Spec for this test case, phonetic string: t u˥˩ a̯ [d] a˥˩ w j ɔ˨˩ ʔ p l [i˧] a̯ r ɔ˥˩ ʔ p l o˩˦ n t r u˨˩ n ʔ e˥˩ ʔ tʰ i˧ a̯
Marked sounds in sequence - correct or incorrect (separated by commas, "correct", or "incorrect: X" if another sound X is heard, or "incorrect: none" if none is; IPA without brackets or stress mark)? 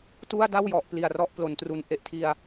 correct, incorrect: i˨˩